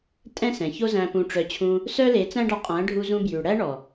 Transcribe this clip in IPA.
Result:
tʼɛ̃˦sɛ̃˨ço˦zæ̃˧ pũ˧ʈ͡ʂœ˧ t͡ɕʰũ˧ | sœ˦le˨˦t͡sæ̃˦ɖɑ˧ qʼæ̃˨˦ɖʱu˧zũ˧bjʉ˨ ɽæ˦ɳɔ˨

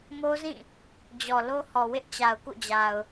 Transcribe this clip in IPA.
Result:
mo˦zĩ˦˨ | d͡ʑɔ˨lo˦hɔ˨wɪ˦ʔ t͡ɕa˨ʊ̯kṵ˦˨d͡ʑa˨ʊ̯

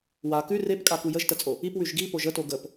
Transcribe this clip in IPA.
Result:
wa kʉ repkʼa kujəʒtət͡sʼo | ipwʉʒ ɡi poʒəto ɡəp

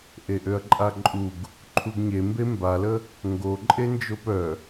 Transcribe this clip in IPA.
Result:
ʔeʔøɐ̯ǃʼaǃʼuɡ | ǃʰuɡɲembe mbalə | ŋɡo ǃʼend͡ʒopœ

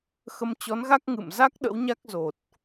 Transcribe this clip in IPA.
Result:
xə˧mt͡ɕɔ˨˦nɣa˦˥k̚ ŋɨ̰˧˨mza˦˥k̚ ɗə̰˧˥wɲa˦˥k̚ zo˨˩t̚

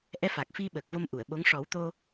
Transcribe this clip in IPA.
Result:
ʔɛ˧fa˨˩k̚fi˧ ɓəː˨˩k̚vo˧m ʔu˨˩˨ə̯ɓo˧˥ŋ ʂɔ˨˩˦w t̪o˧

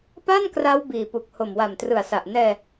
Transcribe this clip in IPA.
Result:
pa˥˩nkra˦˥w biː˨˩pu˨˩k̚ ho˨˩mwa˨˩mtrɯ˨˩a̯sa˨˩ʔ nɛː˧

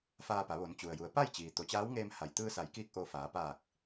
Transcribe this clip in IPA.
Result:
faː˧pa˩˧ ʋo˩˧nt͡ɕu˩ə̯ju˩˧ə̯ pa˥˨jt͡ɕiː˩ t̪o˩˧t͡ɕaː˧˥wŋeː˧m ha˩jt̪ɯː˧sa˩˧jkiː˧k̚ ʔo˧faː˩˧ paː˧˩k̚

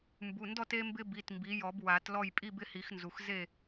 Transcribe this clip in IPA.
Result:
mbu˩˧˩ndɔ˥˨t e˦mbɪ˦bi˩˧˩t mbi˩˥jɔ˨˩˦b wa˨˩˦tlɔ˥˨j pʼi˥˨bɪ˦hi˨˩˦x nzu˩xze˥˨

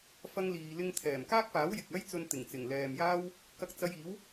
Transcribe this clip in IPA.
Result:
fɐ˧ŋliː˨lɪ˧ŋ t̪ʰɛː˨˩mkaː˥k̚paː˨˥w jɪ˨k̚ɐ˥jt͡sɵ˧n t̪ɪ˨˩ŋt͡sɪ˨˩ŋlɛː˨mjaː˥w | kɐ˧k̚t͡sɐ˧jiː˨˥w

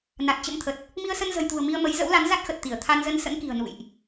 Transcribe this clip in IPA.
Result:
na˨˩t̚t͡ɕə̰˧˥mt̪ʰə˨˩t̚ | mi˧ə̯sə˧nzə̤˨˩jt̪ṳ˨˩ə̯ mi˧ə̯mə˨˦j zə̰˧˥wla˨˦n za˦˥t̚xə˨˩t̚t̪i˧˩ə̯ t̪ʰa˧nzə˧n sə̰˧˥nki̤˨˩ə̯ nṵ˧˨jʔ

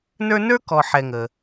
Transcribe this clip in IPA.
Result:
nə˞˦nə˞˥kɔ˨ ħɛ˨ŋə˩

